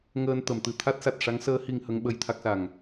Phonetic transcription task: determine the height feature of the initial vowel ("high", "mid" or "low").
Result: mid